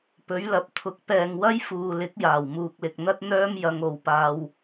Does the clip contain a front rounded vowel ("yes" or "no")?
yes